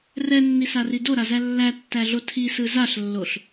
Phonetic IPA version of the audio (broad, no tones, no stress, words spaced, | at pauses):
rɛnːisari doɾazæ lːætːæɮo tʰisɯ zaɬlːoɬ